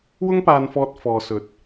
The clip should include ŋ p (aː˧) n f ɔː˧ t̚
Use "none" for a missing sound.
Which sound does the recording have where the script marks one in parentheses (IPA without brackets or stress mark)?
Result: aː˧